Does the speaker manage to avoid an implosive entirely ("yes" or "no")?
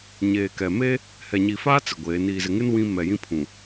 yes